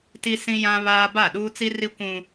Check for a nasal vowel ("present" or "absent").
present